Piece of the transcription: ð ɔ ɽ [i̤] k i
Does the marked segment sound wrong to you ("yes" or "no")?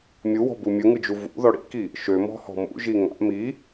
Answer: yes